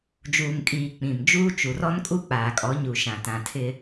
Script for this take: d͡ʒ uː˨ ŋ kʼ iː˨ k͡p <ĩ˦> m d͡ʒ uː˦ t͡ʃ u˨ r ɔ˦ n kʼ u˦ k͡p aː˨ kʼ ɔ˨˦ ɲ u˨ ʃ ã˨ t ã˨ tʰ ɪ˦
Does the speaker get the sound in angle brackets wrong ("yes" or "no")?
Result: yes